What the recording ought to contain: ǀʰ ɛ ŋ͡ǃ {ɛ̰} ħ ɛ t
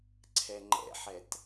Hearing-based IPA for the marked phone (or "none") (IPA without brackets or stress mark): ɛ̰